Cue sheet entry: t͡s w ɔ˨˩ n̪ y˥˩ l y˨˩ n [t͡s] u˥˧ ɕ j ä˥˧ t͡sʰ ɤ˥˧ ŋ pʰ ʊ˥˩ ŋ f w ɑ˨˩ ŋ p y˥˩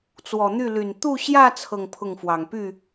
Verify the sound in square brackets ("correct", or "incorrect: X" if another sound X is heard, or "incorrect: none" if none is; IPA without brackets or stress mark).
incorrect: t̪